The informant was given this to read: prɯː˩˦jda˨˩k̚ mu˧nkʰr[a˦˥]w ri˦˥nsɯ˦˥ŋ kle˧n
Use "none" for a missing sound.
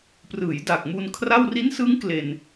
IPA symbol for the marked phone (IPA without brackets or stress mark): a˥˩